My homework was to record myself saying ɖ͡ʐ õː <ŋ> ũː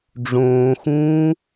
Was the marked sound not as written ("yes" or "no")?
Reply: yes